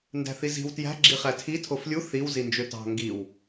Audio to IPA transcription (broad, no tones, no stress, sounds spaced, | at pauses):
n d æ̤ θ i z i̤ w t j æ̤ ɡ͡ǁ i χ æ tʰ i tʰ o f lʲ u θ i w z i n d͡ʒ ø t ɑ̤ ŋ ɡ i w